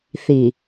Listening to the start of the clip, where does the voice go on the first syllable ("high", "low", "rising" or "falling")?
low